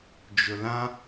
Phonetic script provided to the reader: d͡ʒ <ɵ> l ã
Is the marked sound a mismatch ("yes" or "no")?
no